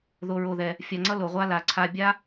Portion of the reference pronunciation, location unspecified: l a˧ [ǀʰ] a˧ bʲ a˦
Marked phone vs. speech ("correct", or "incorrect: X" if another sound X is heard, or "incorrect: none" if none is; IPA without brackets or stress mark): correct